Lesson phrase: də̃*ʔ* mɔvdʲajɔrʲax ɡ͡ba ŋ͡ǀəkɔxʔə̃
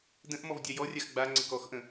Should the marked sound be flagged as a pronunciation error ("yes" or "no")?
no